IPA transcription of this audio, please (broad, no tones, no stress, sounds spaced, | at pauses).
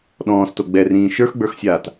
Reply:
ɗ ɔ̃ː s t o ɡ͡b ɛ r ĩː ʃ ə˞ x ɡ͡b ə˞ x sʲ aː t